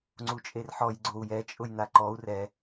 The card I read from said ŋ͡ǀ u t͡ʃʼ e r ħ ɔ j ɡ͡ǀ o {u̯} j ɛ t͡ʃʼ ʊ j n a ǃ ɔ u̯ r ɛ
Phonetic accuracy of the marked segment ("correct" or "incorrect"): correct